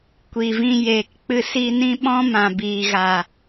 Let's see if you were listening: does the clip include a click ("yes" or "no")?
no